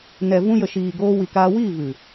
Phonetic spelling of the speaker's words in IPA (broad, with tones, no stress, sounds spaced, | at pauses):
n ɛ˨ v ũ˧ j ə˨ ʃ iː˨ ɡ oː˧ w i˨ k aː˧ w iː˦˨ v ɨ˨